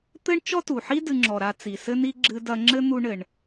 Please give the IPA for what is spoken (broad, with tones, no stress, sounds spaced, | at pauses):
t̪ ɘ˥ ɳ t͡ʃ ɔ˥ t u˩ ħ i˥ d ɨ˧ ŋ͡ǁ ɔ˩ ɾ a˧ t͡s i˩ s ɘ˥ n i˥ ɡ͡ǁ ɨ˧ d ɐ˧ ŋ͡ǁ ɘ˥ n̪ u˥ ɳ ɘ˩ ɳ